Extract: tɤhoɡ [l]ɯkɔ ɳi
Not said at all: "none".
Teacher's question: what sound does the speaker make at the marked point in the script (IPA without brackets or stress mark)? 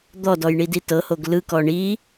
l